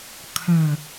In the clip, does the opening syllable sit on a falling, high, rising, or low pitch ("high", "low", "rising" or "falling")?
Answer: low